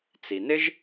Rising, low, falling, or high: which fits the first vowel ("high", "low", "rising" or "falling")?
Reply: low